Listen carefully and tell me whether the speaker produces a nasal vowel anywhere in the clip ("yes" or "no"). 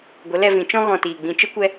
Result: yes